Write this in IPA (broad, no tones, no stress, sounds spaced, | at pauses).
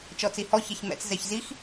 t͡ʃ ɔ t͡s i h ɔ ç ɛ ç m ɛ̰ t͡s z ɛ ç z i x